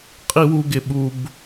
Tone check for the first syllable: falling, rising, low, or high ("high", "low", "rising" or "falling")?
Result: high